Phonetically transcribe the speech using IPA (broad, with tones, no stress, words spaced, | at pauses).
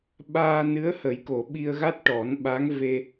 ɓaː˧nɨ˧˥ə̯hə˨˩˦j ko˨˩˨ɓi˧ə̯ɣa˦˥t̚ ʈɔ˨˩˦nɓa˧˥ŋ ve˧